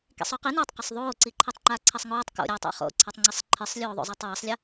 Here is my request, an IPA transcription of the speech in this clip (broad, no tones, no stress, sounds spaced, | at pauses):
k ḭ sˤ o q i n o tˤ q ɐ sˤ ðˤ oː ǀ i ǃʰ i tˤ ŋ͡ǃ aː ǀʰ ɐ sˤ ŋ oː tˤ k o̰ ɾʲ aː tˤ a̰ χ o̰ ǀʰ a tˤ ŋ͡ǀ i sˤ ǃʰ ɨ sˤ lʲ oː ðˤ o̰ zˤ ɐː tˤ w ɐː sˤ lʲ ɐ